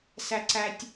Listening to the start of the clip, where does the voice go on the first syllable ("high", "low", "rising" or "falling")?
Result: high